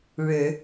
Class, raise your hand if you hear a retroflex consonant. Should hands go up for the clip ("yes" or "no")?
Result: yes